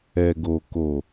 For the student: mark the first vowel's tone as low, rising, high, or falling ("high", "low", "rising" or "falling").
low